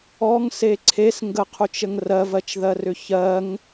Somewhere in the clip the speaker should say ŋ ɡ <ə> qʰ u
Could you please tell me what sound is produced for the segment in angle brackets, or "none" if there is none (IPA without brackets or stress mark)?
ə